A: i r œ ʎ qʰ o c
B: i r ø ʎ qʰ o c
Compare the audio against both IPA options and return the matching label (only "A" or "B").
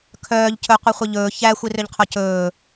B